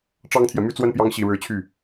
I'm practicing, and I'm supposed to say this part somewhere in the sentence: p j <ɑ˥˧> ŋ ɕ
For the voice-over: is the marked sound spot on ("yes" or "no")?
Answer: no